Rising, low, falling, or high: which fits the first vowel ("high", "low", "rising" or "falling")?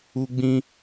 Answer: high